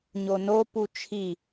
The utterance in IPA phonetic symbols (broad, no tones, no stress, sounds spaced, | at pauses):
ɲ o n o p u t͡ʃʰ i